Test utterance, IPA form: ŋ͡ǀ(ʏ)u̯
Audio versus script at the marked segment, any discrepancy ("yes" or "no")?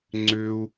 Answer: no